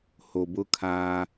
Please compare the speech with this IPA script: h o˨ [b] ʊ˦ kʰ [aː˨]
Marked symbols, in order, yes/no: yes, no

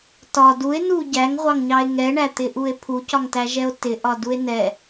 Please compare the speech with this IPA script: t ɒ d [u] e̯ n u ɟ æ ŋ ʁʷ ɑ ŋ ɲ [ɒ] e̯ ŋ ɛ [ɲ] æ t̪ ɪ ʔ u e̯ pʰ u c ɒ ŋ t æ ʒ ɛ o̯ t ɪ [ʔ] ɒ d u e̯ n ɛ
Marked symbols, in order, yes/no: yes, no, no, yes

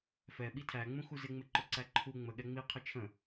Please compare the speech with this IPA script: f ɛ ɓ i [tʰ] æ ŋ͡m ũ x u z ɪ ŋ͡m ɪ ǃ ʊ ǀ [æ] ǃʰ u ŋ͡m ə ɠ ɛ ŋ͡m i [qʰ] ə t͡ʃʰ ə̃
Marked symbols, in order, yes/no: yes, yes, yes

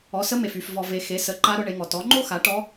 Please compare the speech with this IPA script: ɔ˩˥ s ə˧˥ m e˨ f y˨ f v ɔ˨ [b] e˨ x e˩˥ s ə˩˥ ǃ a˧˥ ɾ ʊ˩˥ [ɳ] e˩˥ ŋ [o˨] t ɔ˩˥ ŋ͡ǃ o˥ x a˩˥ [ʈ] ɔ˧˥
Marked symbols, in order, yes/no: no, yes, no, yes

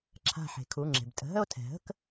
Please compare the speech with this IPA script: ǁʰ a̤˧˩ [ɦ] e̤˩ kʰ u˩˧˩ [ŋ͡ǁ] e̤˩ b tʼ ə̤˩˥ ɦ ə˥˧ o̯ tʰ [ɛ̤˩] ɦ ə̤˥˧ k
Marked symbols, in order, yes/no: no, yes, yes

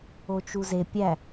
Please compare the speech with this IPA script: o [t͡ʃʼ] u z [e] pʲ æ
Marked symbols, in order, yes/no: no, yes

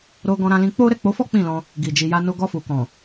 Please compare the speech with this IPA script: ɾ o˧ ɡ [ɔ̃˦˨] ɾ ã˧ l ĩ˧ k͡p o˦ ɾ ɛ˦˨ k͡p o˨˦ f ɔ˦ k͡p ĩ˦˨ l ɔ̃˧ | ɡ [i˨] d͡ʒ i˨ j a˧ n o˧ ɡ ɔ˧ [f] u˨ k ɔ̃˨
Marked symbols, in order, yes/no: no, yes, yes

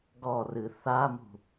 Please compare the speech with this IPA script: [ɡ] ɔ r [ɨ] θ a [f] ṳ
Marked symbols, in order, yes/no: yes, yes, no

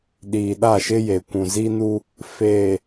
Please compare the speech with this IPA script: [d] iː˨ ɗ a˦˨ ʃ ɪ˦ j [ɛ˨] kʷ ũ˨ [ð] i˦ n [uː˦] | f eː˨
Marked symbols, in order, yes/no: no, no, no, no

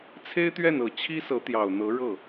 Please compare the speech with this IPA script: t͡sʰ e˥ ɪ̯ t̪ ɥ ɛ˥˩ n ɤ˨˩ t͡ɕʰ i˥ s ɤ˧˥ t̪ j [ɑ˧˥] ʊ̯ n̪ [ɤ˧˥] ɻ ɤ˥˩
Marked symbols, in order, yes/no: no, yes

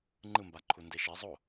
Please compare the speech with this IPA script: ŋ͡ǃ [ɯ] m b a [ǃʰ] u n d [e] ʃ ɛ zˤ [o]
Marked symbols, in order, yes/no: yes, yes, yes, yes

